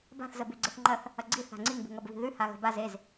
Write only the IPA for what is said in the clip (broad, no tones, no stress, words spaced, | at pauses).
ba̤θ zəbʉɡ͡ǀɘθŋ͡ǃɐθ | ɐɡ͡ǀi θa̤ŋ͡ǀiŋ bṳŋɐbβi̤ðʉ haɣə̤baz ez